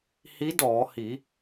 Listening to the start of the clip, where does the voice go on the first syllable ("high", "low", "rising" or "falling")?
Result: rising